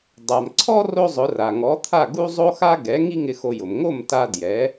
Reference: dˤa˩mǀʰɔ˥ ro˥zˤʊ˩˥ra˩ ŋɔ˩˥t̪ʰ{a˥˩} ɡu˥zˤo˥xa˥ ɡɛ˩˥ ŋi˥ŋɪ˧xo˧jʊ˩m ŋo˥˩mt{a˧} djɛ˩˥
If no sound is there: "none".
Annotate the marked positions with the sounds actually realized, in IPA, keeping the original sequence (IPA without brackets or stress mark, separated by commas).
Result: a˥˩, a˧